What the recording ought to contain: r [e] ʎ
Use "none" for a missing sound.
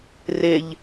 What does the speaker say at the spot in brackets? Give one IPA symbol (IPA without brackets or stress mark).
e